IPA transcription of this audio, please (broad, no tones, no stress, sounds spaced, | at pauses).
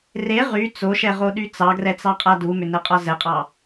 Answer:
r e ʁ y t͡s o ʃ ɛ ʁ o ɗ y t͡s ɑ ɡ r ɛ t͡s ɑ qʼ a d u m ʏ n ɛ qʼ ɒ z ɛ qʼ ɑ